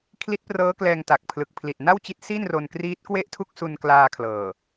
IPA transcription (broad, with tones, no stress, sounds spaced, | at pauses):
kʰ l i˦˥ t̚ p r ɤː˦˥ k l ɛː˧ ŋ t a˨˩ k̚ pʰ l ɯ˨˩ k̚ pʰ l i˨˩ t̚ n a˥˩ w t͡ɕ i˦˥ t̚ s i˥˩ n r o˧ n k r iː˦˥ t̚ k w e˥˩ ʔ tʰ u˥˩ k̚ s u˧ n k l aː˧ kʰ l ɤː˨˩